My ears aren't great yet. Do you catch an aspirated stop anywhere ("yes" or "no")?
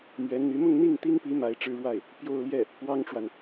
no